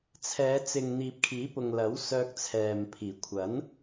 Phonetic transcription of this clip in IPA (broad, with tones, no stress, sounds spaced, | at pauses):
t͡sʰ ɛː˨˧ t͡s ɪ˨ ŋ n̪ iː˨ p̚ kʰ iː˨˥ p ʊ˨ ŋ l ɐ˨˥ w s œː˧ k̚ t͡sʰ ɛː˨ m pʰ iː˨˩ kʷʰ ɐ˨˥ n